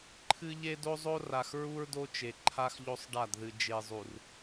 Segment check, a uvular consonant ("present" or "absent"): absent